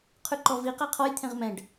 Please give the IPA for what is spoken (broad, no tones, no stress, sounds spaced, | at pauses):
qʰ ʉ ǃ ɔ v i q æ qʰ ɔ j t̪ʰ ẽ ʁ m ɛ̃ ɖ